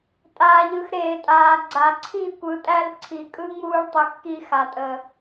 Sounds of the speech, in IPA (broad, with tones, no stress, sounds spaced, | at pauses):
tʼ aː˨ ʎ ɯ˨ x ɾ eː˨ tʼ aː˨ ɡ͡ǀ a˨ ǀʰ i˦˨ kʷ ɯ˨ tʼ æ˦ l ǀʰ i˨ kʼ ɯ˦ ŋ͡m uː˦ ɭ tˤ ɯ˨ x k i˦ x a˨ tʼ ə˨